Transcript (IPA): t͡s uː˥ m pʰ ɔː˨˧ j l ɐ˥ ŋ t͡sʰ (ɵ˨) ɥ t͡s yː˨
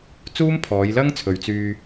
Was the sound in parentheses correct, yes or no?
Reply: yes